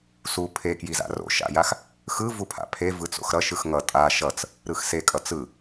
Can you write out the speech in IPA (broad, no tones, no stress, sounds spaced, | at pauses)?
s u pʰ e k j i z a̰ r o̰ ʃ a̰ j a x | x ɯ v u pʰ a̰ pʰ e v ɯ t͡s o̰ x ɾ ʌ ʃ ɯ x ŋ ʌ tʼ a ʃ ʌ t͡s | ɾ ɯ x s e kʼ ʌ t͡s ɯ